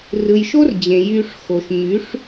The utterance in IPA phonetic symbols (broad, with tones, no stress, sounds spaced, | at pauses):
r ɯ˨ j ʃ o˦ r d͡ʑ ẽ˨ j y˧ ʂ x o˨ ʃ ɲ y˨˦ ʂ